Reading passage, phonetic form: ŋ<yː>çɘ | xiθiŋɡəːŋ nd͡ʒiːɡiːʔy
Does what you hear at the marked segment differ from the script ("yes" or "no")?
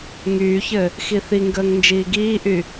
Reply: no